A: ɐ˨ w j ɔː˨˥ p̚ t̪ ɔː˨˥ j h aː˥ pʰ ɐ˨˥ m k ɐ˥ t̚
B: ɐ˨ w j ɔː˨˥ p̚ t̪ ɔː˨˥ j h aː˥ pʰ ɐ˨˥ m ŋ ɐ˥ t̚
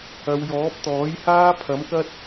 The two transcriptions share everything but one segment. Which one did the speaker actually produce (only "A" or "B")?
A